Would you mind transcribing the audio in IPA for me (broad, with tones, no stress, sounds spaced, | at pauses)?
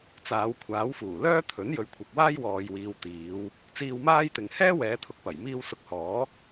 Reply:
t͡s aː˨˧ w kʷʰ aː˨˥ w f uː˨˩ l œː˥ t̪ʰ ɵ˨˥ n j ɵ˨˧ ɥ kʷʰ ɐ˨ k̚ w aː˥ j w ɔː˨ j w iː˨ w t̪ iː˨˧ w | t͡s iː˧ w m aː˥ j t̪ ɪ˨ ŋ h ɛː˥ w ɛː˨˧ t̪ʰ ʊ˨ k̚ p ɐ˨˩ j m iː˥ w s ʊ˧ k̚ h ɔː˨˥